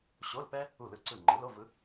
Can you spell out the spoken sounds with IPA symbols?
ɕ o˧˥˧ l p ɛ˥ | u˥˩ l ɯ˥˩ ǀ ɯ˥˩ ŋ͡ǃ ɯ˩˥ l o˧˥˧ v ɯ˩˥

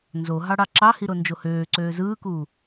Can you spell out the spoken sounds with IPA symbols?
n z o ɦ ɑ ɽ ɑ ǁ ɑ h i ɾ o n d͡ʒ o h øː ǀ øː z ɯː k u

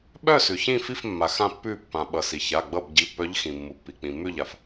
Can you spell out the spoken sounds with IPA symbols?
ɓ œ˦˨ s ʉ˩ ç ĩ˦˨ f i˦˨ f mː a˩ x ã˦˨ pː ʉ˦˨ pː ã˩ ɓ ʌ˩ s i˩ ç a˩˧˩ ɡ͡b ʌ˦˨ b ɟ i˩˧˩ pː œ˨˦ ʎ x ĩ˩ mː u˩ pː i˩ k͡p ĩ˩ mː ʉ˦˨ ʎ a˩ f

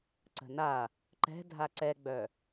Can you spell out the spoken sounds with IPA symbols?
ǀ ə̤ n a | ǃ ɛ̤ dʱ a ǀ ɛ ɡ͡b œ

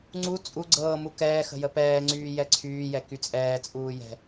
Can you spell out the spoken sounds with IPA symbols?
ŋ͡ǀ u t͡sʼ u ɡ͡ǀ ɤː m u k ɛː x ə̤ j ə p ɛː ŋ͡ǀ yː j ɛ ǀʰ yː j ɛ k y t͡sʼ ɛː t͡sʼ uː j ɛ̤

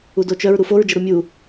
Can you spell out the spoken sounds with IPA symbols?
u d o t͡ʃ œ ɹ ɾ u f o ɹ d͡ʒ ə ɾ u mʲ u

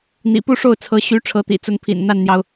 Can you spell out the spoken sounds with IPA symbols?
n̪ ḭ˨˩ p u˥˧ ʂ o˥˩ ʊ̯ t͡sʰ ɤ˧˥ ɕ y˧˥ ʈ͡ʂʰ ɤ˧˥ t̪ ḭ˨˩ t͡s ʊ˧˥ ŋ pʰ ḭ˨˩ n n̪ a˥˩ n n̪ j ɑ˩ ʊ̯

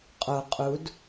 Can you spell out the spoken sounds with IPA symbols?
qʼ o qʼ u d

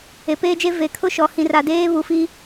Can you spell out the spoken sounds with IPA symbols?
e˨ p eː˦ d͡ʒ e˦ v e˨˦ kʰ ʊ˦ ʃ ɔ˨ h ĩ˨ r a˨ d eː˦ β u˨ f i˦

